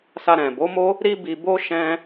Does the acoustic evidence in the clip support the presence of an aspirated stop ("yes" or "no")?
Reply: no